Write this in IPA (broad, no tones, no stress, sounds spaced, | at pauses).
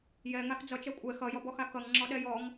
j ɛ ŋ a x d͡z ʌ t͡ʃ ɛ kʷʼ ɛ x ʌ j ɔ b ɔ x a k ʌ ŋ ŋ͡ǁ ɔ ɗ ɛ j ɔ ŋ